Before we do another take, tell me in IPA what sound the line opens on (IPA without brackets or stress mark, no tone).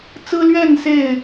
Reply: t͡s